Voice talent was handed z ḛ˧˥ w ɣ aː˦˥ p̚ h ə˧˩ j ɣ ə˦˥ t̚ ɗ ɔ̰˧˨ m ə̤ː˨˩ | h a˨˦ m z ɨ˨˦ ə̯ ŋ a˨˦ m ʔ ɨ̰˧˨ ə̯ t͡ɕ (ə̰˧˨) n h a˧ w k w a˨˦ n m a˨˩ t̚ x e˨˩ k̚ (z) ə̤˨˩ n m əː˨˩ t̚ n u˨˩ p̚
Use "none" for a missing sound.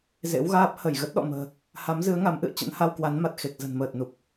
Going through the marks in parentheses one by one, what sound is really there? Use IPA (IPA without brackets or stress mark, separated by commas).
ə̰˧˥, z